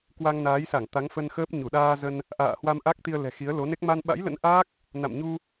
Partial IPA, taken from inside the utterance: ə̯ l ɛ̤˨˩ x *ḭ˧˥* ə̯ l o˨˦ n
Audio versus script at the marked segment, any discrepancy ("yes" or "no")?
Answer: yes